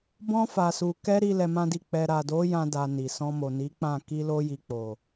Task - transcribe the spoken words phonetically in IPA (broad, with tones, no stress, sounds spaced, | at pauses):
b ɔ̃˧ f a˨ s u˨ k ɛ˧ ɾ i˦ l ɛ˧ m ã˦ d i˦˨ k͡p ɛ˧ ɾ a˨ d o˨˦ j ã˧ d a˧ n i˨ s ɔ̃˧ m o˨ n i˨˦ k͡p ã˦˨ k i˧ l o˧ j i˨ k͡p o˨